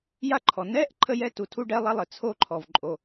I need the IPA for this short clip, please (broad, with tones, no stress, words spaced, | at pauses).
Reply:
ja˥ǃʰɔ˩ nɛ˥ʔ ǃʰə˥jɛ˥tu˩ tʰu˥ɖɛ˥lˠa˥lˠɘ˩ t͡sʰo˥ǃʰɔ˩v ǃʼo˩